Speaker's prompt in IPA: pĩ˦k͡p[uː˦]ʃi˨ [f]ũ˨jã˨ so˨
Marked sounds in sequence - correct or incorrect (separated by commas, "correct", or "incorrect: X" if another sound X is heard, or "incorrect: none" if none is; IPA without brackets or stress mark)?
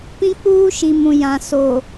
correct, incorrect: m